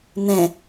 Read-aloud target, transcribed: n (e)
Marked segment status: incorrect: ẽ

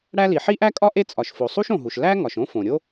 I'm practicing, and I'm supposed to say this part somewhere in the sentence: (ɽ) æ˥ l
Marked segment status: correct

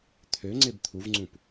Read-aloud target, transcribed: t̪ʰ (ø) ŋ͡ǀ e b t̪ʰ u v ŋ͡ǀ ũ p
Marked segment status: correct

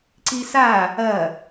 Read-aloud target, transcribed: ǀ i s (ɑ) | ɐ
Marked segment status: incorrect: a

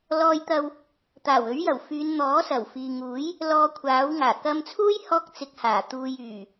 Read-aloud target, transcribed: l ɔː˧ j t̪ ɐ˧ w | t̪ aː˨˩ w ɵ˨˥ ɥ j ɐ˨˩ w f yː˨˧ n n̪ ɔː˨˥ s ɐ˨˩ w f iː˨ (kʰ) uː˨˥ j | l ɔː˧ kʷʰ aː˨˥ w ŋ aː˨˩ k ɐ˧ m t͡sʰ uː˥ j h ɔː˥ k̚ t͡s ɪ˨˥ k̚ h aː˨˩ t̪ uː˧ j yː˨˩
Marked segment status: incorrect: ŋ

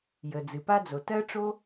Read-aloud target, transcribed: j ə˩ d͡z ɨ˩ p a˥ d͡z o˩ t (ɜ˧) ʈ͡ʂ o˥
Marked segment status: incorrect: ɜ˥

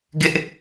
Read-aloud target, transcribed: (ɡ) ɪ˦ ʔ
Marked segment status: correct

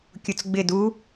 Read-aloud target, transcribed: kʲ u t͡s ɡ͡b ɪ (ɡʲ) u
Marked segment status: incorrect: d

